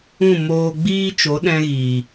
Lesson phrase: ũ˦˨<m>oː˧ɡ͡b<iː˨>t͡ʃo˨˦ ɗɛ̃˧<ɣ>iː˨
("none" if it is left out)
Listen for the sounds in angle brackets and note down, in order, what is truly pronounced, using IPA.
m, iː˦, ɣ

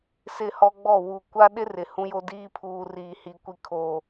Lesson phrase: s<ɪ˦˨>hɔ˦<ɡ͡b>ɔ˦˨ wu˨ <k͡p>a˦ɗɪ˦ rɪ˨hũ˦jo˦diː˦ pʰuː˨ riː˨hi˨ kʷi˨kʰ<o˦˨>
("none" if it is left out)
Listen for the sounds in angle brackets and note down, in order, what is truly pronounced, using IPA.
ɪ˦˨, ɡ͡b, kʷ, o˨

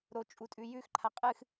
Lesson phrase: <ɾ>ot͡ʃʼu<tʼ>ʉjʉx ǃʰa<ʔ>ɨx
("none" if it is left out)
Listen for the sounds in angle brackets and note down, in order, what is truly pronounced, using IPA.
ɾ, tʼ, qʼ

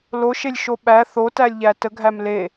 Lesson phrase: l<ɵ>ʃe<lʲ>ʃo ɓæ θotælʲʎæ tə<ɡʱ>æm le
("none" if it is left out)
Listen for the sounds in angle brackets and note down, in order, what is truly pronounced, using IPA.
o, lʲ, ɡʱ

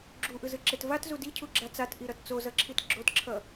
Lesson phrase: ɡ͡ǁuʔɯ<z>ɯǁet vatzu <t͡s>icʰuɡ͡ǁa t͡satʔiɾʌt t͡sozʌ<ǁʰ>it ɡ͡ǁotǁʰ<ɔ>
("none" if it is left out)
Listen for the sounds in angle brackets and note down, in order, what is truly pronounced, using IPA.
z, d, ǁʰ, ʌ

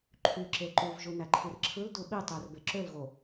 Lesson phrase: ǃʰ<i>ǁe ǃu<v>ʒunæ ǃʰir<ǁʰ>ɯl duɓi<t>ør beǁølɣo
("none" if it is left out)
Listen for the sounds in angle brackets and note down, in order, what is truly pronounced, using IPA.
y, v, ǁʰ, tˤ

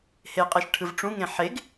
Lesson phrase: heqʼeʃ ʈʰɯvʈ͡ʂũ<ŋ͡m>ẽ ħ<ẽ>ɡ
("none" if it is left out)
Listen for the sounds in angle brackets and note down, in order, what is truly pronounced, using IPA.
ŋ, e

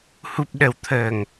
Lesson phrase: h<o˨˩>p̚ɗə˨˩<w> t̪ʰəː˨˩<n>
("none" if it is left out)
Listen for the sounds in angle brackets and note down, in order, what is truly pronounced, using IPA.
u˨˩, w, ŋ

